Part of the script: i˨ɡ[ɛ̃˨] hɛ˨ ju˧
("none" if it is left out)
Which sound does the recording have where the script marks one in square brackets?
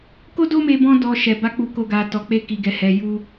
ɛ˨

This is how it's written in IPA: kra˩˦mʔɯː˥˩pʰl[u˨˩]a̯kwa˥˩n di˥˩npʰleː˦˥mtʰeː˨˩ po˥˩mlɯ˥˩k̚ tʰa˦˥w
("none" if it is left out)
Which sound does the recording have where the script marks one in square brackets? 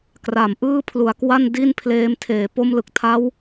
u˨˩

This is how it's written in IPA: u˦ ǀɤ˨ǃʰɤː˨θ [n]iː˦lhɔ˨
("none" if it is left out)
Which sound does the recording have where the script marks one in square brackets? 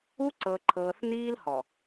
n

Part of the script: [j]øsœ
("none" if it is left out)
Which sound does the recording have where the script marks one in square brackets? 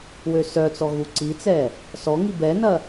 w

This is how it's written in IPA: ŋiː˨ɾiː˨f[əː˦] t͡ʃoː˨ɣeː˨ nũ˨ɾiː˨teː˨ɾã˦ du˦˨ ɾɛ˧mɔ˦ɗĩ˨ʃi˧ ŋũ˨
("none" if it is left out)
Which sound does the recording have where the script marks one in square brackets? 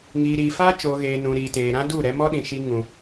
aː˦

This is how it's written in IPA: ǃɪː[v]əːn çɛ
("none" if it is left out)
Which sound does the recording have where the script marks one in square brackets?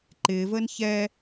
v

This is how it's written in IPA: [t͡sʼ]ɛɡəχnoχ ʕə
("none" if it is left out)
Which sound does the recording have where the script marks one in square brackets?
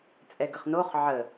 t͡sʼ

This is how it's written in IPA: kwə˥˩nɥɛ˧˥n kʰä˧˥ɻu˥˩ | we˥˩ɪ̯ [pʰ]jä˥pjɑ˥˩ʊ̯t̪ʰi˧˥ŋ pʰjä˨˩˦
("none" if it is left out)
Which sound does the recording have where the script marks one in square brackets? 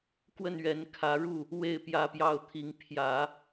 p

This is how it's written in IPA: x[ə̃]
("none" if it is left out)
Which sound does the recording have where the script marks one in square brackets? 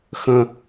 ə̃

